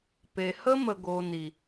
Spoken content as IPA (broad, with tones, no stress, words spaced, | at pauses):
pe˨hə˦mə˨ ɡo˨ ni˨